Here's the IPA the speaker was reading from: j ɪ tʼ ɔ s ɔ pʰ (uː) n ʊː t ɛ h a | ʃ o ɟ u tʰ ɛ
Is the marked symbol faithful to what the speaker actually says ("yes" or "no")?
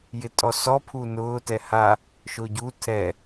no